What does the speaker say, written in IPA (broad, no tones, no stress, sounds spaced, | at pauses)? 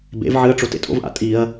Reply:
b ḛ v ʕ ɨ ɐ̯ ʈ͡ʂ o t ḛ tʼ o̰ v ʔ a̰ tʼ i ɐ̯